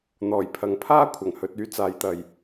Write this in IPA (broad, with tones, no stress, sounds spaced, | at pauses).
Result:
n̪ ɔː˨˩ j pʰ ɐ˨˥ ŋ pʰ aː˥ kʷʰ ɐ˨˩ ŋ h ɵ˧ t̚ yː˥ t͡s aː˨˧ j t̪ ɐ˨ j